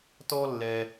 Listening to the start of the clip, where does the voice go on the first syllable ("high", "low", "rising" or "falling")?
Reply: high